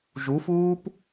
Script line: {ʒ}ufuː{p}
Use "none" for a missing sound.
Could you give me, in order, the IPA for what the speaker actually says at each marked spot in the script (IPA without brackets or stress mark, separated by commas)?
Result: ʒ, p